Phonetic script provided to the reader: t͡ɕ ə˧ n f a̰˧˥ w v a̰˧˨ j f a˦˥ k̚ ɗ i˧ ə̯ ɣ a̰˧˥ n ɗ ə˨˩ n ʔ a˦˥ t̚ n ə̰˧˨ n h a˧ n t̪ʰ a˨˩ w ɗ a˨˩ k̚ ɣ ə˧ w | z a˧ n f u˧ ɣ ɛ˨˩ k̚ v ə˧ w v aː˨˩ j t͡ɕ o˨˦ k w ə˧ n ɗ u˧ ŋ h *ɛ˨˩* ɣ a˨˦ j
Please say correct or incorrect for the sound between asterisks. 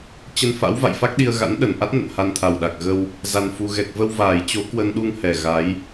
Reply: correct